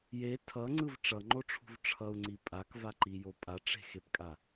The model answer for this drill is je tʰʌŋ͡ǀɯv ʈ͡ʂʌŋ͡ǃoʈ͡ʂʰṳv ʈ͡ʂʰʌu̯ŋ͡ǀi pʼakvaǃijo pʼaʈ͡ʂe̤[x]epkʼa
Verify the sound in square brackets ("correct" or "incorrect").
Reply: correct